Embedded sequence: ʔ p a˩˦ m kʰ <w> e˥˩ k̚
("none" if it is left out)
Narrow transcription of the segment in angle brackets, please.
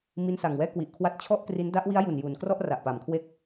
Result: w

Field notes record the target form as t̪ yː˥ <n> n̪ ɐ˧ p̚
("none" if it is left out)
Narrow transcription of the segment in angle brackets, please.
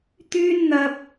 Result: n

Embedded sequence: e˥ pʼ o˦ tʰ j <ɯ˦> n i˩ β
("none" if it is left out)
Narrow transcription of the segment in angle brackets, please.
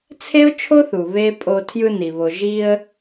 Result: ɯ˦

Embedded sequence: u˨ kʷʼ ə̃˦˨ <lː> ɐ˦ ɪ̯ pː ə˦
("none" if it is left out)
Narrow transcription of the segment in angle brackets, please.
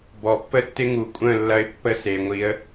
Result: lː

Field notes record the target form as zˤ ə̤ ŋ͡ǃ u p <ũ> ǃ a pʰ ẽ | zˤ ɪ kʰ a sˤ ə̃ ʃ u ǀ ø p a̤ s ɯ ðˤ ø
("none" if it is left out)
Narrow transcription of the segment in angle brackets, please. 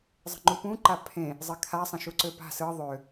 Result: ũ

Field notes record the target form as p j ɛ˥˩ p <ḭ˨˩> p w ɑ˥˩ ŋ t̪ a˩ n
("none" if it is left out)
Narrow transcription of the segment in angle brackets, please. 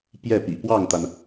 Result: ḭ˨˩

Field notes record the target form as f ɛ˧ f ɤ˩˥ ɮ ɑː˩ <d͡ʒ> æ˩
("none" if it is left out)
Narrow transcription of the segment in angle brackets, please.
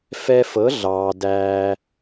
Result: d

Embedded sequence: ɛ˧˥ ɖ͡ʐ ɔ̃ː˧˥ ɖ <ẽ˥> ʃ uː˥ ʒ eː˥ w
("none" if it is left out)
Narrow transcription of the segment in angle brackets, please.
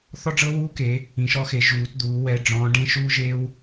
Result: ẽ˥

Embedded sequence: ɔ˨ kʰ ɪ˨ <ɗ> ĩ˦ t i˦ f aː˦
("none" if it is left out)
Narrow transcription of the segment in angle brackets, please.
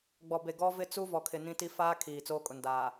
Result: n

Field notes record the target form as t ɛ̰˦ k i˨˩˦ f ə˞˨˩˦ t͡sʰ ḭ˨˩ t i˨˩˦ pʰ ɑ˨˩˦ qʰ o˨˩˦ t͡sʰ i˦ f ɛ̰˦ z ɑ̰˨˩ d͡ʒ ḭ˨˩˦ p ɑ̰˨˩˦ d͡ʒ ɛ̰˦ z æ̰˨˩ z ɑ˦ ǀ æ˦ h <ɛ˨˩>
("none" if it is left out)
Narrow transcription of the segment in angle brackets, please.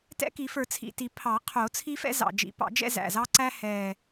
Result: ɛ˨˩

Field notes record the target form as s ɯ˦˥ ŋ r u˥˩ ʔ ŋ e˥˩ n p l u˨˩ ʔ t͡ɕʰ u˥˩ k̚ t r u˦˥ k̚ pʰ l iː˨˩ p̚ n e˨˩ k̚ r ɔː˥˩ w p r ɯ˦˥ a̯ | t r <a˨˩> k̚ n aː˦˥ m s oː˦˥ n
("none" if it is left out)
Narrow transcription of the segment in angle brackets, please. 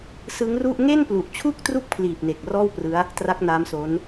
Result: a˦˥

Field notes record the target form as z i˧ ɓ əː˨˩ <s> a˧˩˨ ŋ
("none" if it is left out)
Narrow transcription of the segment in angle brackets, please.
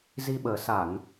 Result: s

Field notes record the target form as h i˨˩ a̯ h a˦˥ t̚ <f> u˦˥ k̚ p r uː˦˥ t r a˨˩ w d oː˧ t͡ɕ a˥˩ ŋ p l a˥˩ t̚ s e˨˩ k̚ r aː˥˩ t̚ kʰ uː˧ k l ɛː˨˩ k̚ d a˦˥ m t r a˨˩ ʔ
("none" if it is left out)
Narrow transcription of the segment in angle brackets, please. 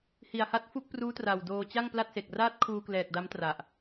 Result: f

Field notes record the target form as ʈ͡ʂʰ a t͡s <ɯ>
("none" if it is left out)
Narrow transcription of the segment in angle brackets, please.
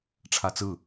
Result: ɯ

